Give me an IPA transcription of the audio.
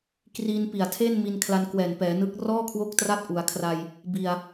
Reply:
k r iː˧ n p i˨˩ a̯ tʰ e˥˩ n m i˧ n kʰ l a˧ n k w ɛː˨˩ n p ɛː˩˦ n ɯ˦˥ k̚ r ɔː˥˩ kʰ w o˦˥ k̚ t r a˦˥ t̚ ʔ u˩˦ a̯ kʰ r a˧ j | b i˧ a̯

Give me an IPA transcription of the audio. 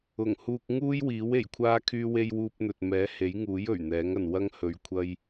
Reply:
ʊ˨˩ ŋ h uː˧ k̚ ŋ uː˥ j w iː˨˥ w e˨˩ j kʷʰ aː˧ kʰ yː˧ w e˧ j w uː˧ p̚ n̪ ɵ˨ t̚ m ɛː˨˥ h e˨˥ j ŋ uː˨˥ j ɵ˨˩ ɥ n̪ ɛː˨˥ ŋ ɐ˨ n w ɐ˥ ŋ h ɵ˨ ɥ kʷʰ ɐ˧ j

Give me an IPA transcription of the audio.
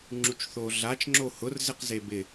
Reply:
ŋ͡ǁ u t͡ʃ θ o ɮ a t͡ʃ ŋ͡ǁ o h ʊ r z ɪ q z e b ɪ

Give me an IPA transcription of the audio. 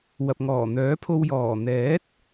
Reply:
w ɐ˨ p̚ ŋ ɔː˨˩ n̪ œː˨˥ pʰ o˧ w j ɔː˨˩ n̪ ɛː˨˥ t̚

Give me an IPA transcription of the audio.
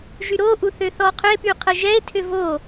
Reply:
ʒ y ɾ o ʔ u θ ø θ ɔ qʰ ʏ e̯ p y qʰ ə ʒ ɛ e̯ tʰ ʏ v o

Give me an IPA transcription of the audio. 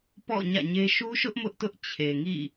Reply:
p ɔ̰˦˨ ɲ ä̰˦˨ ɲ e˦ ʃ u˦ ʃ ʊ˦ ʔ m ʊ˦ ʔ t ʊ˦ ʔ t͡ɕʰ e˨ ŋ ḭ˦˨

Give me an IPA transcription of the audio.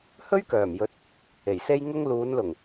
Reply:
h ɵ˥ ɥ k œː˨˩ m j ɵ˨˥ t̚ | e˨˩ j s e˥ j ŋ ʊ˥ ŋ l uː˨˧ n l ʊ˨˩ ŋ

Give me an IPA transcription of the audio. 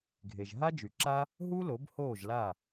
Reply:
ɡʱ e˩ ʒ ɦ a˥ d͡ʒ y˩ ǁ a˥ | ɦ u˥ l o˩˥ b h oː˥˩ ʒ l a˥˩

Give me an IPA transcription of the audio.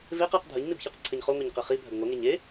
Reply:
v e q ɨ q dʱ ɐ ɲ n i b ç ɨ q ǀʰ ɘ ɲ χ o ŋʷ e ɲ q ɘ χ i bʱ ɐ ɡ ŋʷ ɐ ŋ e ɲ e

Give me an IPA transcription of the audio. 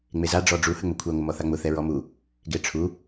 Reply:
ŋ͡m e z a ɖ͡ʐ ɔ ɖ͡ʐ u h ə ŋ͡m ʊ kʷʰ ɛ ŋʷ ə m ɔ θ a ŋ͡m ʊ θ ɛ ɹ ɔ m u | ɡ e ʈ͡ʂʰ u

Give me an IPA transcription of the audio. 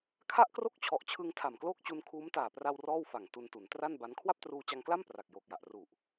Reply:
kʰ a˥˩ ʔ k r o˥˩ k̚ t͡ɕʰ ɔ˨˩ ʔ t͡ɕʰ ɯ˧ ŋ tʰ a˨˩ m k l oː˥˩ k̚ t͡ɕ u˧ n kʰ uː˦˥ m t aː˨˩ p r a˧ w r ɔː˥˩ w f a˨˩ ŋ t u˧ n t u˩˦ n t r a˥˩ n b a˦˥ n kʰ w a˥˩ p̚ t r uː˧ t͡ɕ a˧ ŋ k l a˥˩ m p r a˨˩ k̚ j oː˨˩ k̚ j a˨˩ ʔ r u˨˩ ʔ

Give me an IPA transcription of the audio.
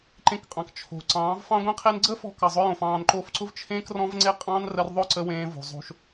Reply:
ǃ ẽ˧ k qʼ ɑ̃˨ k t͡ʃʰ o̤˨ ǀ ɑ̃ː˨˦ v f ɑ̃˦ ɡʷ ẽ˦ qʰ e˦ n ɡ͡ǀ ə˦ f ɔ̤˧ k ɑ˨ zˤ ʊ˧ j õ˨ f ɑ̃ː˨ n ǃ o˧ f ǀ ʊ˦ v t͡ʃʰ ẽː˦ k r ɔ̃˦ v ŋ͡ǀ e˦ qʼ ɑ̃ː˦ n r ə˧ r ðˤ ʊ˦˨ ǀ ə˧ w ẽː˧ v o̤˨ zˤ o̤˧ ʃ

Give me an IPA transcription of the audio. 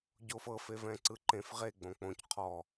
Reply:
ɟ o f ɤ f e v ɛ̃ ǀ ɯ ǃ ẽ f ʁ e ɡ͡b õ k͡p õ c qʰ ɔ

